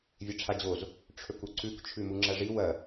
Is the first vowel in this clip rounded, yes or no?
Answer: no